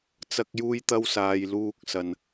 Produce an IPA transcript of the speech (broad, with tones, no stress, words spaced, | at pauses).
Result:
t͡sɐ˥k̚juː˥jt̪ɐ˥w saː˨jluː˧k̚sɐ˨n